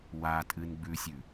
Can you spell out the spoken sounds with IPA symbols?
w a tʼ ɨ n ɡ͡b ʉ sʲ ʉ

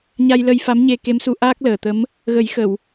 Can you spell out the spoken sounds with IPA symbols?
ɲ a˧ j l ə˧ j f a˧˥ m ɲ e˧ k e˧˥ m s u˨˩˦ ʔ aː˦˥ k̚ l əː˨˩ t̪ ə˧˥ m | ɣ ə˨˩˦ j x ə˨˩˨ w

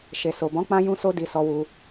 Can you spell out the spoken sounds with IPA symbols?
ʃ e˨ s o˨ b ɔ̃˨˦ k͡p ã˧ j ũ˦ s o˦ d i˧ s ɔ˧ w u˧

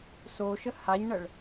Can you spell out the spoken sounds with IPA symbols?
s o ʃ ə h a ɲ ɳ ə ɭ

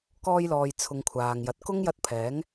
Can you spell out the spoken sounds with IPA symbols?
k ɔː˧ j l ɔː˨ j t͡sʰ ʊ˨˧ ŋ kʷʰ aː˨ ŋ j ɐ˨ t̚ k ʊ˥ ŋ j ɐ˥ t̚ pʰ ɛː˨˥ ŋ

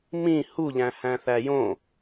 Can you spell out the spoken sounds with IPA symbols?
m ĩ h u ʎ æ̃ h æ̃ θ æ j õ

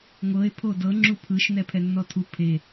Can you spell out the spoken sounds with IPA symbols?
ŋʷ ɤ e̯ pʰ o d ɤ ŋ͡ǁ u pʰ ɯ ʃ n ɛ pʰ ɛ nː ɔ tʰ u pʰ e

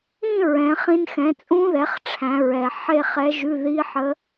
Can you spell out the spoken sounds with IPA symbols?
ĩ˥˧ ɹ ɛ̃˩˧ χ ĩ˧ n x ɛ̃˩˧ t͡sʼ ũ˧ ð ɛ˩˧ χ ʈ͡ʂʰ æ̃˩˧ ɹ ɛ˩ ħ e˥˧ χ ɛ˧˥ ʒ ʉ˧˥˧ ð i˧˥˧ ħ ə˧˥

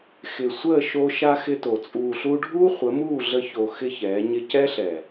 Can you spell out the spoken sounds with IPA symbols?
x ɪ˨ sʷ əː˦˨ ʃ o˧ ʃ a˦ x ɪ˦ t o˨ t͡sʼ uː˨ ɬ u˧ ɖʱ uː˦ χʷ ə˨˦ m uː˦˨ ɮ ə˧ ç o˨ x ɪ˦ ç ɛː˨˦ ɲ ɪ˧ c ɛ˦ ɬ ɛ˨

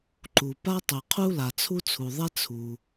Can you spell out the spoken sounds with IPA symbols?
ǃ u˩ p a˥ tˤ e˩ qʰ u˥ l a˩ t͡sʰ u˥ t͡sʰ u˩ ðˤ ɛ˥ t͡sʰ u˩

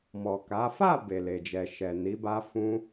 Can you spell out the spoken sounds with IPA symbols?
m ɔ˨ k a˨˦ f a˦˨ b e˨ l e˨ d͡ʒ ɛ˨ ʃ ɛ˨ n i˨˦ b a˦ f ũ˦

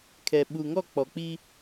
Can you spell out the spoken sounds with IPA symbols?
kʰ ɛ˨ ɓ u˨ ŋ ɔ˦˨ k͡p ɔ˨ k͡p i˦

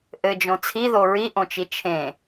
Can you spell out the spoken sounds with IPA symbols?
ʔ ɘ d͡ʒ õ t͡sʰ i ð o ɹ i ʔ õ t͡ʃ i t͡ʃʰ ẽ

